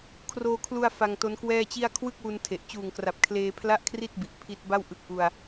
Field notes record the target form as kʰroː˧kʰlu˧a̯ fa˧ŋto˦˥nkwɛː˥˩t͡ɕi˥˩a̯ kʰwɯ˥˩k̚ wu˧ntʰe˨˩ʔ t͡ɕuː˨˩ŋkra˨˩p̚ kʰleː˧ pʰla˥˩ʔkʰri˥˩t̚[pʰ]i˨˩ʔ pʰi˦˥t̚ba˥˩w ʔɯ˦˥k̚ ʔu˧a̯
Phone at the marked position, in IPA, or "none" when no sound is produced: b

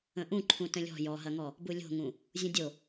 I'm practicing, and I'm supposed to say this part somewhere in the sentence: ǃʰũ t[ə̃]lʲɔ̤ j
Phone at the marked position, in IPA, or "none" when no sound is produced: ə̃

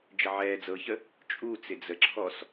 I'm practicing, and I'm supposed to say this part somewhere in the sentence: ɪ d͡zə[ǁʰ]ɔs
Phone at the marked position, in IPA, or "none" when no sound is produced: ǁʰ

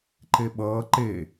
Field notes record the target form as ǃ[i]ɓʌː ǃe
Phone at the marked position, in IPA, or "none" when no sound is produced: e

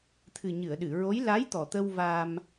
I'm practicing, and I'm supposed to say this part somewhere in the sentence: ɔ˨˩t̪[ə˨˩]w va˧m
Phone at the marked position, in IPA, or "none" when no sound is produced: ə˧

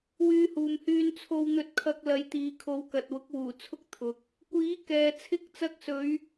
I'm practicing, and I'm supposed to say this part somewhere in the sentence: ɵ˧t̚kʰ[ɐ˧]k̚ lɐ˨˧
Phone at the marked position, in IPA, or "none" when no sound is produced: ɐ˧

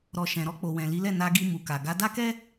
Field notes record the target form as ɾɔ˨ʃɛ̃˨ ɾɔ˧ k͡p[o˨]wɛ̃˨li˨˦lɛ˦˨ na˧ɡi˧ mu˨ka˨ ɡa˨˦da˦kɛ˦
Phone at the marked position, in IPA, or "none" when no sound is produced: o˨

